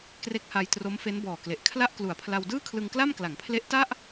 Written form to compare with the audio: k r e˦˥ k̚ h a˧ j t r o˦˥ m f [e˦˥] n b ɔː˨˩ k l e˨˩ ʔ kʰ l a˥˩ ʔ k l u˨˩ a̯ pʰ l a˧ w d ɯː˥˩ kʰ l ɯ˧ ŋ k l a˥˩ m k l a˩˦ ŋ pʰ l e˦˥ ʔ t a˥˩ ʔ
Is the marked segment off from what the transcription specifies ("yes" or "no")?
no